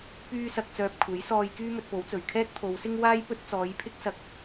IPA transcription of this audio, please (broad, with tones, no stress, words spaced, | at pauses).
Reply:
pyː˥sɐ˧k̚ t͡sœː˧p̚ kʷʰe˨˥jsɔː˧jkyː˥ mɵ˧t̚po˨˥wt͡sɵ˨˩ɥ kʰɛː˥k̚t̪ʰo˨˧wsɪ˥ŋ waː˥jpɵ˥t̚t͡sɔː˨˧jpʰɪ˥k̚ sɐ˥k̚